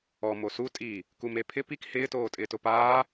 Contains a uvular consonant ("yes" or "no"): no